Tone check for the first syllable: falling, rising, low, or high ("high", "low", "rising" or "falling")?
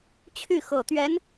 falling